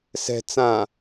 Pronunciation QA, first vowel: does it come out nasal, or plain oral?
oral